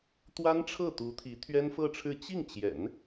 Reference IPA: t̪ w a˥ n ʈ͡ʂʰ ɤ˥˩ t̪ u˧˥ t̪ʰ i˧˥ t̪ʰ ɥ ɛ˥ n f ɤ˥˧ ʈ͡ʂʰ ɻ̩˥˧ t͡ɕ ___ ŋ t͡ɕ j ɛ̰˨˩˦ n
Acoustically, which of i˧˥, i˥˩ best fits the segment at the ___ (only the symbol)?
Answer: i˥˩